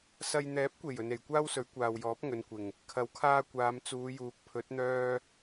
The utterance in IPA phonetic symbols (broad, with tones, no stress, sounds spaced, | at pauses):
s ɐ˨ j n̪ ɛː˨˥ p̚ kʷ e˨˩ j ɵ˨ n e˨˩ j kʷ aː˥ w s ɵ˨˥ ɥ kʷ aː˨ w j ɔː˨˥ p̚ ŋ ɵ˨˧ n kʷ ɪ˨˩ ŋ | kʰ ɐ˨˥ w kʰ aː˧ kʷ aː˨˧ m t͡s uː˨˧ j uː˨˥ k̚ pʰ ɵ˨˥ t̚ n̪ œː˥